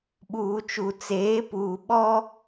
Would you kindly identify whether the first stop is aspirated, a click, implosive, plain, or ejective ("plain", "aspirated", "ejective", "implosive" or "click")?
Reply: implosive